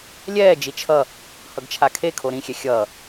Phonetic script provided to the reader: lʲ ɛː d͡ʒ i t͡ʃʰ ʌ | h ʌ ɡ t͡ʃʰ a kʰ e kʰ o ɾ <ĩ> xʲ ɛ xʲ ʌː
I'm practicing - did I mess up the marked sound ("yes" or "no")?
no